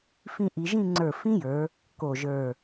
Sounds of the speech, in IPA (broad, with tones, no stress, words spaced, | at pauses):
fĩ˥˧ʔi˧ ʒĩ˥˧ŋ͡ǀə˞˧˩ fĩ˥jə˞˩˧ | ko˧˩ʒə˞˧˩